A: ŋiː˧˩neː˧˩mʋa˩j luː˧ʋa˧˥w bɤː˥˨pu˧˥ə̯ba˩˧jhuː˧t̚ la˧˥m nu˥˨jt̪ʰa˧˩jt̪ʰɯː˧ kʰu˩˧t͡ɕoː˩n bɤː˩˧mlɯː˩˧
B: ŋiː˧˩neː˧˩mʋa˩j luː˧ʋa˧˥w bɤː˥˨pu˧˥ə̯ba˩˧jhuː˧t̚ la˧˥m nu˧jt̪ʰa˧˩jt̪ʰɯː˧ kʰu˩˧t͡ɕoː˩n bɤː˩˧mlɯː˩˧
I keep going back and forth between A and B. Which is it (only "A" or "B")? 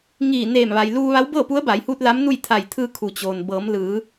A